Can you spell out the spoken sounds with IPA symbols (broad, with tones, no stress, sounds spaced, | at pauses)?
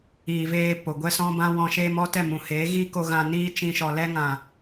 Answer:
iː˨ v eː˧ p o˨ ɡʷ ɛ˦ s ɔ̃˦ b ã˦ w ɔ̃˧ ʃ eː˦ m ɔ˦ t ɛ˦˨ m ũ˨ h eː˨˦ ɣ iː˦ k o˧ ɣ ã˧ n iː˦ t͡ʃ ĩ˧ ʃ ɔ˨ l ɛ˧ ŋ ã˨